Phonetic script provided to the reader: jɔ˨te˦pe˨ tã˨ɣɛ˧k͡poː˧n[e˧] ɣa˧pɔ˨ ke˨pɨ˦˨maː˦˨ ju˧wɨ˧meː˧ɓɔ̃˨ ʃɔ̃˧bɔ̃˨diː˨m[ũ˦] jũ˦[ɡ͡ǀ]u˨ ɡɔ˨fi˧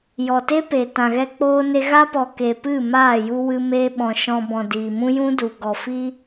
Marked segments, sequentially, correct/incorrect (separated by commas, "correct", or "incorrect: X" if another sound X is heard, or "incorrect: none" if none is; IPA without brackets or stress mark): correct, correct, incorrect: d